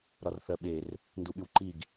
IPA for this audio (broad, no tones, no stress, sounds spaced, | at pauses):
ɾ ɒ r θ ɜ ɓ e r | n d u ɓ y w ǃ i ɡ